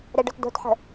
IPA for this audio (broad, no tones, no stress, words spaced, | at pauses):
ɾɛɖœtdo̤tħə̤